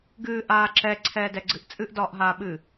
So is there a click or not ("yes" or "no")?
yes